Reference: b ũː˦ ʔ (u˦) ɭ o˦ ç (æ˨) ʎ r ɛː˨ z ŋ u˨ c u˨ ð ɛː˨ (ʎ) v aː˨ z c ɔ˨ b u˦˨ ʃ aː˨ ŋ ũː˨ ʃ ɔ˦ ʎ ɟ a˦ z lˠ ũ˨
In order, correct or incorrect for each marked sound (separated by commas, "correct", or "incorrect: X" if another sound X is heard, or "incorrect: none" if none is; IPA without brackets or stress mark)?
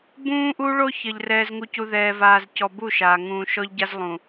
correct, incorrect: ə˨, incorrect: none